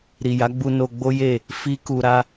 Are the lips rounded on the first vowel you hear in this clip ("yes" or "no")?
no